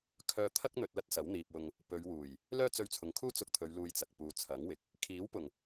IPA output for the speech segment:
kʰœː˧t̪ʰɐ˥k̚ n̪ɵ˧t̚lɐ˥t̚sɐ˨˥wn̪iː˨p̚ wʊ˧ŋ | pɵ˨˧ɥwuː˨˩j | lœː˥t͡sɵ˧ɥt͡sʰʊ˨ŋkʰuː˥ t͡sʊ˧k̚t̪ʰɵ˨˧ɥ luː˧jt͡sɐ˨k̚puː˨˧ t͡sʰɐ˨˥ŋwɪ˨k̚ | kʰiː˨˥wpʊ˨˩ŋ

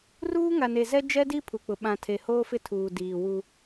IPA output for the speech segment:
ruː˦ŋa˨ne˨zɛ˦ d͡ʒɛ˦di˦ pʰu˨k͡pʊ˨ ɓã˨ tʰe˨hoː˦fɪ˦ tʰuː˨diː˨wu˦

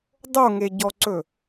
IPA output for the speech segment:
dˤoŋeɟɔǀɵ

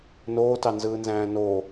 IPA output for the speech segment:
noːtɑnzɯːnzæ̃ː no

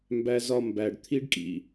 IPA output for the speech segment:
mbæ˦zɒ˦ mbæ˨ɖ t̪ʰi˦ɖkʼḭ˨

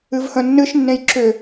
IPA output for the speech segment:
ɨvhə̃nːɨʃnːẽj ǁʏ

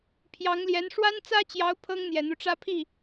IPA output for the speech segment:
pʰjɑ˧˥ŋljɛ˧˥n ʂwa˥nt͡sä˥t͡ɕjɑ˧˥ʊ̯ pʰɤ˥ŋn̪jɛ˨˩n̪u˦ʈ͡ʂä˥ pʰi˥˩

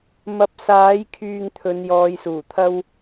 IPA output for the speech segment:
mɐ˨˥p̚saː˨˥jkʰyː˧ŋ t̪ʰɵ˨˧njɔː˨˧jsuː˨˩ t̪ʰɐ˥w

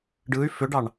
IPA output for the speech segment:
ɖɯy̯ fʏɖɑɳ

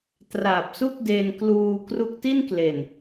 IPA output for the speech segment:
tra˨˩p̚su˥˩k̚ de˧nkluː˧ kru˦˥k̚ti˥˩nkle˨˩n

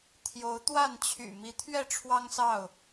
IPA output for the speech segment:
t̪ʰjo˨˦ʊ̯t̪wa˥˨nt͡ɕʰy̰˨˩ mi˨˦t̪ʰɥɛ˥˨ʈ͡ʂʰwɑ˦ŋsɑ˥˨ʊ̯

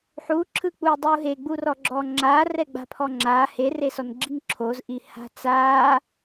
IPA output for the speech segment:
ħuǁʰɯk͡puː dˤuːɦeɡ͡bu rɔɡ͡ǁɔːŋ͡ǁaː rɛɡ͡ba̤pʰɔŋ͡ǁaː heresɔn ɡ͡ǁiŋǁʰozʔi ha̤t͡saː

